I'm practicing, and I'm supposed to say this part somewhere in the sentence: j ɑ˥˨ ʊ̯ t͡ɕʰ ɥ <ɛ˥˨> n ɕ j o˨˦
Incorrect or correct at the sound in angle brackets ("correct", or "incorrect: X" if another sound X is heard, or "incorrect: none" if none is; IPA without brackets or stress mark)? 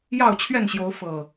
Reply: correct